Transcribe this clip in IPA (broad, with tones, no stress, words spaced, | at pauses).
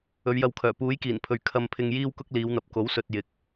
ɵ˨˧ɥjɐ˧wkʰœː˨˩ puː˨˥jkiː˨˩npʰɵ˨ɥ kʰɐ˧mpʰɪ˧ŋ jiː˥wkʊ˥k̚liː˨˧wn̪ɐ˨p̚ ko˨˥wsɵ˨t̚ jɪ˨˥k̚